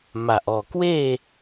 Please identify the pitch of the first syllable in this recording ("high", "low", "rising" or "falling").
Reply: low